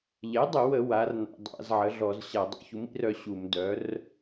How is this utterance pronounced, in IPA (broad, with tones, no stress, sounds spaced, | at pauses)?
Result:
ʎ ɛ˩˥ dˤ ə˧˩˧ w ə˧˩˧ w a˩˥ r n a̰˧˩˧ dˤ a̰˧˩˧ z ʕ ə˩˥ ɮ ɔ˧˩˧ z ɕ a˧˩˧ dˤ ṵ˩˥ ç u˩˥ m ḭ˩˥ r œ˩˥ ɕ u˧˩˧ m d œ˩˥ r